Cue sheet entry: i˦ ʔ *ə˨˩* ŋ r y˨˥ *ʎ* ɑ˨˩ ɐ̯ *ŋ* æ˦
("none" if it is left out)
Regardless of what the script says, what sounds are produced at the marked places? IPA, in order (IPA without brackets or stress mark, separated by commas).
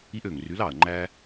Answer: ø˨˩, l, ŋ͡ǃ